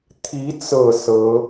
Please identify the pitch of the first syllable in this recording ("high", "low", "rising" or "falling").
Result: rising